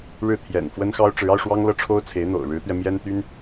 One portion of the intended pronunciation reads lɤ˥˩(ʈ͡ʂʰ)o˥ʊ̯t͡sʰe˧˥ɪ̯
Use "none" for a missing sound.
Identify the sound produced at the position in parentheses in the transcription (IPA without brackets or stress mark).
ʈ͡ʂʰ